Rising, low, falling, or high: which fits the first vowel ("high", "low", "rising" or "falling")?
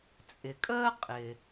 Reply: low